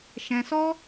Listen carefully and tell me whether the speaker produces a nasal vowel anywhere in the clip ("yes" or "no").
yes